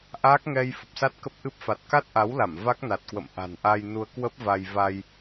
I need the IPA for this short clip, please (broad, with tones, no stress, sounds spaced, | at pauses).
ʔ aː˦˥ k̚ ŋ ɛ˧ j f ə˨˩ p̚ s a˦˥ t̚ k ə˦˥ p̚ ʔ ɨ˦˥ p̚ f a˨˩ t̚ k a˦˥ t̚ ʔ a˨˦ w l a˧˩ m v a˦˥ k̚ n a˨˩ t̚ k w ə̰˧˨ m ʔ a̤˨˩ n ʔ a˧ j n u˧ ə̯ k w ə˦˥ p̚ v a˧ j v a˧ j